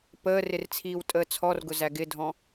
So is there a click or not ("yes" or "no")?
no